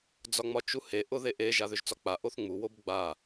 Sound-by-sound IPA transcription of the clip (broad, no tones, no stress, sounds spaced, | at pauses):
d͡z ɒ ŋ͡m ɒ t͡ʃ u h e ʔ ʊ ð e ʔ e ʒ a ð ʏ ʒ t͡s ɒ k͡p a ʔ o θ ŋ͡m u w o b ɡ͡b a